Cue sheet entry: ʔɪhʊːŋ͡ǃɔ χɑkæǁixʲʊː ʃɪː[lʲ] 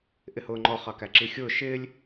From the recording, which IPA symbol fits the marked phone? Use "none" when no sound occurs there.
lʲ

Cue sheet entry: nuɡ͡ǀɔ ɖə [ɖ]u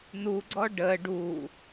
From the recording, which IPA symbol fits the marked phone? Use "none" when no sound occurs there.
ɖ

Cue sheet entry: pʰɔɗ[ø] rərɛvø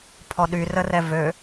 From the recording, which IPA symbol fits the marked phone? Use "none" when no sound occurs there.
y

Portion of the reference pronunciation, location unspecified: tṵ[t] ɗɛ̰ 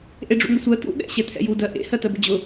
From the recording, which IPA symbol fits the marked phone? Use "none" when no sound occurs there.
none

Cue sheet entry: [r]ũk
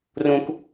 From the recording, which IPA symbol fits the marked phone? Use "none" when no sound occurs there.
r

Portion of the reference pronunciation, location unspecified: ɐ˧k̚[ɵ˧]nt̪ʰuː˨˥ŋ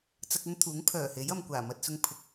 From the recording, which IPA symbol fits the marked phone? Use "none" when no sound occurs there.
ɵ˥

